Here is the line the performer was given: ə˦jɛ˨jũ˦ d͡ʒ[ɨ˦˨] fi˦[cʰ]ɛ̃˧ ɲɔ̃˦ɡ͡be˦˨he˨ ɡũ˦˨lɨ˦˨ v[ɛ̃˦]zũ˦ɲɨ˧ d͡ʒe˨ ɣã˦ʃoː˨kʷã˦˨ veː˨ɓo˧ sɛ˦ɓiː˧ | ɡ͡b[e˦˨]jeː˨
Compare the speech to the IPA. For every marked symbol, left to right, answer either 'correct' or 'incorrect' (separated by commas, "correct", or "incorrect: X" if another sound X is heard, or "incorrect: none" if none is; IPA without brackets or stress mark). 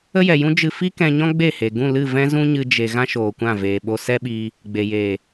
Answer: incorrect: ɨ˧, incorrect: k, correct, incorrect: e˨